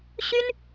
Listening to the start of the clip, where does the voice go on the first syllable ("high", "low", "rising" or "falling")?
high